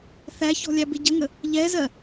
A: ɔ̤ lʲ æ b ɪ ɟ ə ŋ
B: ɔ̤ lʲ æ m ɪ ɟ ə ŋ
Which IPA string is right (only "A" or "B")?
A